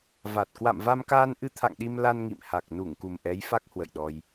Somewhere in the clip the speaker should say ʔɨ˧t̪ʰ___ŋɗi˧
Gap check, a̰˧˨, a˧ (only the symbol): a̰˧˨